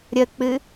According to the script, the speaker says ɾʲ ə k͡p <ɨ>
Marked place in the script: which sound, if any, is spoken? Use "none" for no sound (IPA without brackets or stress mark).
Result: ɨ